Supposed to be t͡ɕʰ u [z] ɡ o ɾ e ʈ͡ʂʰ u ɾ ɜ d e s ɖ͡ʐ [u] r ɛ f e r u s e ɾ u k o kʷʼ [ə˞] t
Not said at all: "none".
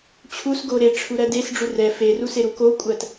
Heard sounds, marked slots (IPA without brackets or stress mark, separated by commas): s, u, ɜ